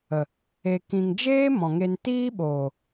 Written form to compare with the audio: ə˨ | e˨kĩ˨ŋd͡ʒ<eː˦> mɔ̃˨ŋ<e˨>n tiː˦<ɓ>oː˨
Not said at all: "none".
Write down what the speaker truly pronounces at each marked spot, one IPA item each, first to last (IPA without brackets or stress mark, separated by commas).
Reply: eː˦, e˧, ɓ